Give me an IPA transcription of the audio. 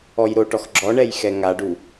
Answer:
ɔ j ɾ o ʈ ɔ x ɡ͡ǁ ɔ ɳ ɛ j x ɛ ŋ a ɖ u

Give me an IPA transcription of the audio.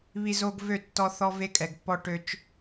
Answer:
β i˦ z o˦ ɡ v ø˦˨ tː ɔ˦ θ ɔ˦ v e˦ kʼ ɛ˨ ɡ pː ɔ˦ ʈ ø˦ t͡ʃ

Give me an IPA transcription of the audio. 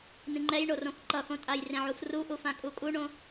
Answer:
n̪ ĩ ŋ͡ǃ ɛ j ɳ o r õ x ǃ ʌ x õ tʼ a j r ẽ ʕ u f r u ʔ u f ã kʼ u kʼ u ɳ õ

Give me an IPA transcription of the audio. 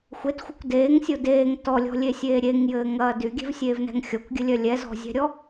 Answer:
xʷ e t xʷ ɘ kʷ d eː ŋ sʲ o d eː ŋ t ɔ lʲ ɔ̤ lʲ e sʲ eː ɾʲ e ŋ j ɘː ŋ ɐː d y ɡʲ ɛ̤ v sʲ eː v n ɛ̤ ŋ xʲ ɔ kʷ ɡʲ ɘ lʲ œ lʲ ɛ z ɔ̤ zʲ ɛ̤ ɾʲ ɔ

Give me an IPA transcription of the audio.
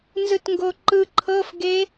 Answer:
n z ɯ t ŋ ɡ o ǃ ɯ ǃʰ ɤ f ɡ e

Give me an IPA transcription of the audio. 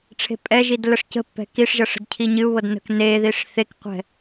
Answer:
ʈ͡ʂʰ e̤ pʼ ɛ ʒ i d l ə ʂ c ə̤ pː ɛ̤ k i ʂ ʒ ɤ ʂ ə̤ d cʰ i ɲ ɨ u̯ β ɤ d n ə̤ k n e ð i ʂ θ e k qʷ ɛ̤

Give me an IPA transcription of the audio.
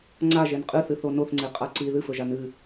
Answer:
ŋ͡ǀ a ʒ e n qʼ ɨ θ ɨ θ o n o θ ŋ͡ǀ e qʼ a ǀ i ð ɨ f ɵ ʒ a n ɨ

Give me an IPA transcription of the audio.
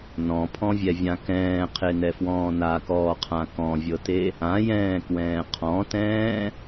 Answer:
n ɔ̃ pʰ ɔ̃ vʲ ɛ vʲ ã k ɛ̃ː qʰ e n ɛ f w ɔ̃ː n a k ɔː qʰ ã k ɔ̃ vʲ ɤ t e | ã j ɛ̃ː k w ɛ̃ː qʰ ɔ̃ t ɛ̃ː

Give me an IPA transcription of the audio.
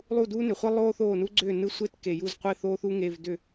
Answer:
lˠ u˥˨ d uː˥ n ʏ˨ χʷ e˥ lˠ oː˥ θ oː˥˨ n u˥ ɡ͡ǀ ʏː˥˨ n ɯ˥˨ sʷ e˥ t k e˨ j u˥˨ z qʷ e˥˨ θ oː˥ θ u˥ ŋ e˧˥˧ v d ʏ˥˨

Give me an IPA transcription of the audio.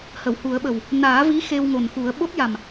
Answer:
h ə˨˩˨ w h u˨˩˦ ə̯ ɓ ə˨˩ w | n aː˨˩˦ v i˧˥ x e˧ w ŋ o˨˩ n x u˨˩˦ ə̯ ɓ o˦˥ t̚ j a˨˩ m

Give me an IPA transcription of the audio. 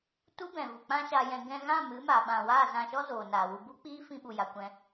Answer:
t u˦ b ɛ̃˨ v u˨ k͡p ã˦ ʃ a˧ j ɛ̃˧ ɡ ɛ̃˧ ɣ ã˦˨ m ɨ˨˦ m a˨ ɓ ã˨ w aː˦˨ z ã˧ ʃ ɔ˦ z oː˨ n aː˨ w u˧ b u˦ k͡p iː˦ f ĩ˧ ɓ u˨ j a˨ kʷ ɛ̃˧

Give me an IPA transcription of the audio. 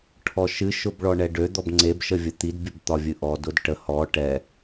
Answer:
ʈʰ ɔ ʃ ɨ ʃ ʊ b ɭ ɔ ɳ ɛ ɖ ø d̪ ɔ b ŋ͡ǀ e b ʃ ə vʲ ə t̪ i d bʲ ə b t̪ ɒ vʲ ɨ ʔ ɔ d ʊ d ʈ ə h ɔ ʈ ɛ

